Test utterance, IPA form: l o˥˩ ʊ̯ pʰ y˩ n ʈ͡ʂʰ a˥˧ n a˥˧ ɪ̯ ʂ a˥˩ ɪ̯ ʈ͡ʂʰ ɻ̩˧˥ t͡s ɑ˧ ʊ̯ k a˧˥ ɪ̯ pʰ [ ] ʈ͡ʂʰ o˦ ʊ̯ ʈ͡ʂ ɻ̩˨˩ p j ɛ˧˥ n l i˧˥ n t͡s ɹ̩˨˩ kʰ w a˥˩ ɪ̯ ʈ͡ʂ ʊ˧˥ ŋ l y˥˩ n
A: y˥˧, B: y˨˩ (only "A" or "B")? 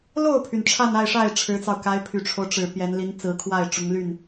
B